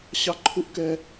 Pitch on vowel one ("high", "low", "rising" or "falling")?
high